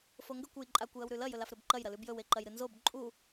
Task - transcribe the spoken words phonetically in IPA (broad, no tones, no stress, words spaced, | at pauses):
foŋɡɵkʷ ɨjǃʼakʷ jɐwɾʉlɐ jɵlafɾɵbǃɐj ɾɐlʉbjɵw eǃɐjɾɨnzob ǃʼu